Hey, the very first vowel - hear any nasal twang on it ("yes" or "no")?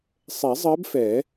no